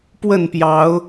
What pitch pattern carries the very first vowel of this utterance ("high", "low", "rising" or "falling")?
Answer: falling